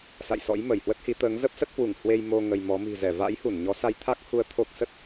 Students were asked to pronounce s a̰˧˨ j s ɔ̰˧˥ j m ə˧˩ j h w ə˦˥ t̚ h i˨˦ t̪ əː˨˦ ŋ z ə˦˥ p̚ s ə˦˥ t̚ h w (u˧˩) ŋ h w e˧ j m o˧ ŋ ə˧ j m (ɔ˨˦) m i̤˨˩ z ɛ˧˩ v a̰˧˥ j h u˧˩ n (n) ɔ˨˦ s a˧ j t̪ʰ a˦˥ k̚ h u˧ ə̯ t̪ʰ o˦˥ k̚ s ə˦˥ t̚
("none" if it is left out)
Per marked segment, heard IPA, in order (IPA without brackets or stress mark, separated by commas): u˧˩, ɔ˨˦, ɲ